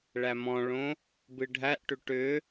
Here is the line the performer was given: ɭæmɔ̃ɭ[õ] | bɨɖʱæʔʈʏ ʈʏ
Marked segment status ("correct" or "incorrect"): correct